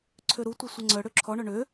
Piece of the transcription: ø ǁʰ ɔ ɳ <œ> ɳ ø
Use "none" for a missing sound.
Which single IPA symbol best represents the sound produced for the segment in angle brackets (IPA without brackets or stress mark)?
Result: œ